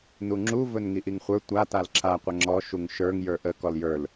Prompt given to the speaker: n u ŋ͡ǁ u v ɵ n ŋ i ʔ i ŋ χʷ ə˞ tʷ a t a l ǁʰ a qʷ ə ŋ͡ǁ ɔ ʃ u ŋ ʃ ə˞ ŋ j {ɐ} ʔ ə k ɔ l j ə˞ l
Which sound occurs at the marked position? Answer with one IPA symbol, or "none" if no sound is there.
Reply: ə˞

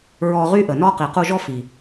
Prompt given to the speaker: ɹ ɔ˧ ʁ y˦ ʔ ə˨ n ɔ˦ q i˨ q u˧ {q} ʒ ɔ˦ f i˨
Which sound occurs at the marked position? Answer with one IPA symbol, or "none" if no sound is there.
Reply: none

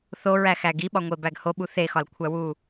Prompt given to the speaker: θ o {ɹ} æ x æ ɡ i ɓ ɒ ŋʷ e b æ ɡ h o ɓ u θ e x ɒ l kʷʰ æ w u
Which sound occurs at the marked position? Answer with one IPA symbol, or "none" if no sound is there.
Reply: ɹ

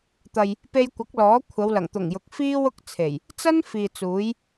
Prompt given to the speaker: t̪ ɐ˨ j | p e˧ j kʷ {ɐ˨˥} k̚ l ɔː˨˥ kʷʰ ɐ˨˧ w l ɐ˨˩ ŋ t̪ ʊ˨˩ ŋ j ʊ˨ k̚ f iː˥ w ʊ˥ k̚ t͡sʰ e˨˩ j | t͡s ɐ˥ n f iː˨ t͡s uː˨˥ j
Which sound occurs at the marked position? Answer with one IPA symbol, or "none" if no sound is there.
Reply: ɐ˨˥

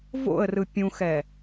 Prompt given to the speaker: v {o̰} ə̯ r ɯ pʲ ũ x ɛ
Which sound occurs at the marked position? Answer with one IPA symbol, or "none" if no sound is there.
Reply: o̰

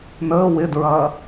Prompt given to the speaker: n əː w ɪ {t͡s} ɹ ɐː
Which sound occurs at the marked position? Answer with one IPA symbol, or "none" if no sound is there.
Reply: d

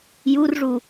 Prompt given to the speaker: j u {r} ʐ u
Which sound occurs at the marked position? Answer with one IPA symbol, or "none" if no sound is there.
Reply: r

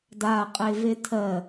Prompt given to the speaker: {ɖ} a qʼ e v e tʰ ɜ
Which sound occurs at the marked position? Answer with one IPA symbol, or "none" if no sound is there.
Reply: d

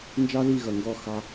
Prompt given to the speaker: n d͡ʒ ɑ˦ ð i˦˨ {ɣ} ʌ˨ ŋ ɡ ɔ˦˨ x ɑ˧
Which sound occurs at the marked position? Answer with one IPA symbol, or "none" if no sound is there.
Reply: ɣ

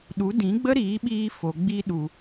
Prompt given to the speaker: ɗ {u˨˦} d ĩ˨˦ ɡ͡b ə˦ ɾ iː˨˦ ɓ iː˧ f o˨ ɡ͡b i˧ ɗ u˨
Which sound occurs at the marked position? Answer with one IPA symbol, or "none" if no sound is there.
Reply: u˨˦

